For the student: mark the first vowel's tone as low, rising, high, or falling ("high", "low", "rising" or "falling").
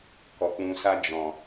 low